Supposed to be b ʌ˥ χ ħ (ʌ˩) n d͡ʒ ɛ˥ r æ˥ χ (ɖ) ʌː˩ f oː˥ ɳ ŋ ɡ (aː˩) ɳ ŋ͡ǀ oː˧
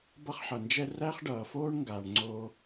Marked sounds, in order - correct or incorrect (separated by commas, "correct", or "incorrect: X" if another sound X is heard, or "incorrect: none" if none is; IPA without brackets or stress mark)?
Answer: correct, correct, correct